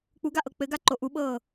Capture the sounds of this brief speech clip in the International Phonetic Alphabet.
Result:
k͡p u ɡ a ʔ ɤ k͡p ɘ ɡ a ǃ o ʔ u ɓ ɤː

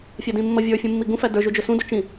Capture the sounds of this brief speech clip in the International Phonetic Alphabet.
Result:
fʲ æ d ĩ mː ʌ vʲ ə˞ fʲ ũ mː i ɡ ũ f æ d ə˞ ʒ u d͡ʒ ʊ s ũ d ʊ t͡ʃ ĩ

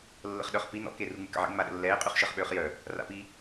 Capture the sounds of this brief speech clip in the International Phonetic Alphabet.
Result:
lː ə̰ χ ɗ œ χ p i n ɔ̰ k e r u ŋ͡m y k ə̰ ʕ ḛ ŋ͡m a ɗ ə̰ lː ɛː qʼ y χ ʃ əː χ ɓ øː χ j œ | r a̰ p i

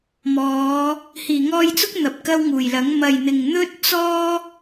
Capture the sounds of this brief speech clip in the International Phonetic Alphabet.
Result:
m ɔː˨˧ | h iː˨˩ ŋ ɔː˧ j t͡s ʊ˥ k̚ n̪ ɐ˨ p̚ k ɐ˥ w ŋ uː˨˩ j l ɐ˨˥ ŋ m ɐ˨˩ j n̪ ɪ˨˩ ŋ n̪ ɵ˥ t̚ t͡s ɔː˥

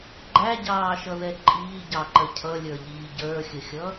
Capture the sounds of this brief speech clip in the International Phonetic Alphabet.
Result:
ɡ͡ǃ æ ɟ ɑː ʃ ʌ ð ɛ ǃʼ iː ɟ ɑ ǃ ə cʰ ʌ lʲ ə˞ ʎ iː ɟ ə˞ xʲ ə xʲ ʌ

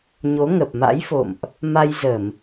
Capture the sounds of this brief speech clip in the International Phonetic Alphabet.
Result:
ɲ o˨˦ ŋ ə˨˩ p̚ m a̰˧˥ j f o̰˧˨ m ʔ | m a˧ j z ə˧˩˨ m

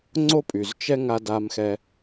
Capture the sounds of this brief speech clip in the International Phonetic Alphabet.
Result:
ŋ͡ǀ o˦ pʼ y˨ z t͡ʃ ɛ˦ ŋ a˧ d a˧ m x ɛ˧

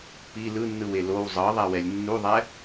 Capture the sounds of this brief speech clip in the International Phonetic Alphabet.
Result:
p i l ɯ nː ɯ w e l o w zˤ ɤ ðˤ ɛ w ɛ lʲ nː u ðˤ ɛ

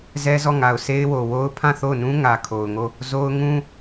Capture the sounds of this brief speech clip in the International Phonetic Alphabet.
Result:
z ɛ˦ z ɔ˦˨ ŋ a˨ ʊ̯ sʰ e˦ ɪ̯ w o˨ w o˦ ʊ̯ pʰ ã˦˨ θ o˦˨ ʊ̯ n ũ˦ ŋ ä˨ kʰ o˨ ʊ̯ ŋ o˦˨ | z o˦ ʊ̯ ŋ ũ˦

